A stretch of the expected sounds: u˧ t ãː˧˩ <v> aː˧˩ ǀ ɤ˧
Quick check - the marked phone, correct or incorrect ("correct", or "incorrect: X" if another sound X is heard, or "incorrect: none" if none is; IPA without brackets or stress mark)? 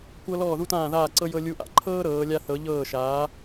incorrect: ð